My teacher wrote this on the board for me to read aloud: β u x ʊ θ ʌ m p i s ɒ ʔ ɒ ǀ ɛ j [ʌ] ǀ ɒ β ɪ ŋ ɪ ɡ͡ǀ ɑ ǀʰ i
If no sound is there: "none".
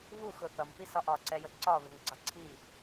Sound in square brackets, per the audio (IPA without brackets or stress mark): ə